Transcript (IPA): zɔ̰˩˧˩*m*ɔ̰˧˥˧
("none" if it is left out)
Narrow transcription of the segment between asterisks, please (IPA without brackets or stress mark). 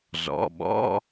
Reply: ɓ